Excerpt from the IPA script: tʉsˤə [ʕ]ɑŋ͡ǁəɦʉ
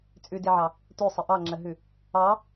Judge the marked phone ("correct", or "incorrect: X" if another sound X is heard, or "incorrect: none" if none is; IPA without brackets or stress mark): incorrect: ʔ